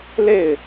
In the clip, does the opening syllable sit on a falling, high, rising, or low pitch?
falling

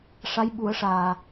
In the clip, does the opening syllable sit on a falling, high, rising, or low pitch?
rising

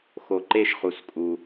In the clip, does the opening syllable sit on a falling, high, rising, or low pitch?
low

